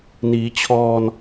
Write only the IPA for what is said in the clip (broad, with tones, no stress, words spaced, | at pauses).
niː˩˦t͡ɕʰɔː˧n